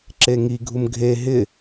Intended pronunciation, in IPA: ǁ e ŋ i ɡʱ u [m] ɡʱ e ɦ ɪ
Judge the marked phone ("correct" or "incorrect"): correct